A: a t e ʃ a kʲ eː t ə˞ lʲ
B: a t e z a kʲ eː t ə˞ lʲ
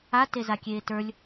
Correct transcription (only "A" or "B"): B